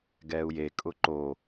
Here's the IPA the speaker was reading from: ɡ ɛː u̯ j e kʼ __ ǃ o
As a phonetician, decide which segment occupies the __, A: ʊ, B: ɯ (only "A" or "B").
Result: A